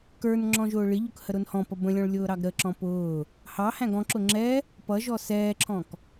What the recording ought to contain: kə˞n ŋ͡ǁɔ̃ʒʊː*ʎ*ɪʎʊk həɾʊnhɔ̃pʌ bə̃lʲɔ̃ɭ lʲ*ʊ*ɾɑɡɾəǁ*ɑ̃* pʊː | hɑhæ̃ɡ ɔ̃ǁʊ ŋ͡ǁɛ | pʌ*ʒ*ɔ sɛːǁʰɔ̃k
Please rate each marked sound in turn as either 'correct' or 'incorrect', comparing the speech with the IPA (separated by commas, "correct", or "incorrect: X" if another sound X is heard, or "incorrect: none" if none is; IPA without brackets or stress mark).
incorrect: ɭ, incorrect: ʊː, incorrect: ɔ̃, correct